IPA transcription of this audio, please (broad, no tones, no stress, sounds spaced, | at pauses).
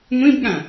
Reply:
ŋʷ ĩ b ɠ ã